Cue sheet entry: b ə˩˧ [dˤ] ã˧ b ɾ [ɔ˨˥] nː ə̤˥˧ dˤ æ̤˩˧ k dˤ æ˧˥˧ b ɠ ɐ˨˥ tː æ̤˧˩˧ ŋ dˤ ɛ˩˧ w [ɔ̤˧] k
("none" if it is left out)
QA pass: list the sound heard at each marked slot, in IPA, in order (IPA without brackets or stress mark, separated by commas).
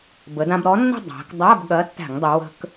d, ɔ˨˥, ə̤˧